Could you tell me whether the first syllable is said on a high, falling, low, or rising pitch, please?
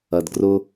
low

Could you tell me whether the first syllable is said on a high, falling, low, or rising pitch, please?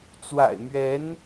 low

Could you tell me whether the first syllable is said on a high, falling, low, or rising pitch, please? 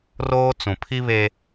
high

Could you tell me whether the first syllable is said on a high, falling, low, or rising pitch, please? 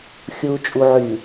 low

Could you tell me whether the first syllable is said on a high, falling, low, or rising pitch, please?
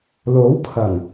rising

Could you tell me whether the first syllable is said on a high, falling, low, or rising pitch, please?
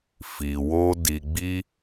low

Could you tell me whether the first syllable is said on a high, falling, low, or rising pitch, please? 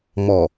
low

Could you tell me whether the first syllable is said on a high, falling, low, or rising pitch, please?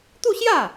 falling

